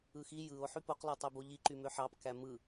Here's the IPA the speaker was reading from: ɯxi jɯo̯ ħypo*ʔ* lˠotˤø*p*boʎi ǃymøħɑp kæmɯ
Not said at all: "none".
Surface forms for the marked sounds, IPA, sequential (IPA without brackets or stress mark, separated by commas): q, none